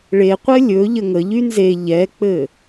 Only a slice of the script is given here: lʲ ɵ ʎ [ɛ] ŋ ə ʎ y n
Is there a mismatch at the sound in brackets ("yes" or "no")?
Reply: yes